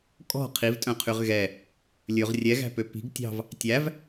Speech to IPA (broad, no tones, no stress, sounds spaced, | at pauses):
kʼ ɔ̤ qʰ i v tʼ œ̃ qʰ y ʁ ɣ ɛ | lʲ ɵ ʁ rʲ ɛ ɣ æ̤ p ø p i̤ ɡ tʲ ɑ̤ v | tʲ æ v